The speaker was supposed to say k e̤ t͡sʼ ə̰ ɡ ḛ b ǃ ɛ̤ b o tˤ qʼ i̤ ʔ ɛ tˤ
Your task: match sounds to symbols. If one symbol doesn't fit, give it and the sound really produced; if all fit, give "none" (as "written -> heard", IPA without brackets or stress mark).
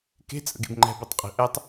ǃ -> ŋ͡ǃ